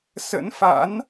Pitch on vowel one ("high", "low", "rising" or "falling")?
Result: rising